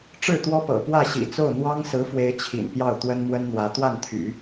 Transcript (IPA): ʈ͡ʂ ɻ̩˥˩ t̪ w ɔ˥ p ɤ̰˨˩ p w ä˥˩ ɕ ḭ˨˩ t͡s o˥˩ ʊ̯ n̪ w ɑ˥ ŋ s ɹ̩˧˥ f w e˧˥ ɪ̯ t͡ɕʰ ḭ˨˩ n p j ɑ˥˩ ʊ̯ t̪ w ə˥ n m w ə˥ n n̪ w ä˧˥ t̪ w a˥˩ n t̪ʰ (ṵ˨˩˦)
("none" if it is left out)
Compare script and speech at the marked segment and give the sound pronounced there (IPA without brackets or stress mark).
y̰˨˩˦